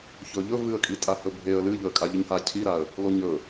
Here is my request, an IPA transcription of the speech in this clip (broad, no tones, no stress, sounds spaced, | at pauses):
ç ɵ ʎ ɵ v ɨ ə̯ kʼ i tʼ a h ɵ bʱ e ə̯ l ɨ ʎ ɵ ə̯ kʼ a ʎ ɨ ɲ h a cʰ i ɾ a ə̯ | l o ɲ ɵ